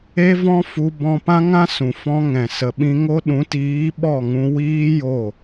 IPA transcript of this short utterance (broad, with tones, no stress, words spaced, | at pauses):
e˦vɔ̃˦fu˧ bɔ̃˦ pã˦ŋã˦sũ˨ fɔ̃˧ ŋɛ̃˨sə˨ɓĩ˧ŋo˦ ɗũ˨˦tiː˨˦ ɓɔ˦˨ŋũ˧ wiː˦ jo˦˨